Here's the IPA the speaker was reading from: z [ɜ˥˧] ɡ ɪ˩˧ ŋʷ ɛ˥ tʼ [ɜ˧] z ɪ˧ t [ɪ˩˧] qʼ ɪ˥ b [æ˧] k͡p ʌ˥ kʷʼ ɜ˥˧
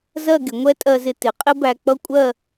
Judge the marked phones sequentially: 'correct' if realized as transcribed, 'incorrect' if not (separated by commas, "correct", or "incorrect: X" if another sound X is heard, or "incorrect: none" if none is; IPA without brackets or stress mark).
correct, correct, correct, correct